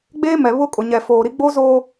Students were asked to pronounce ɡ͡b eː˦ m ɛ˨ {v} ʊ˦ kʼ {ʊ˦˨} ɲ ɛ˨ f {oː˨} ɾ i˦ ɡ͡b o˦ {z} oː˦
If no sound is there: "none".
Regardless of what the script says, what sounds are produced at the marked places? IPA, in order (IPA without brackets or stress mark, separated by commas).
β, ʊ˨, oː˨, z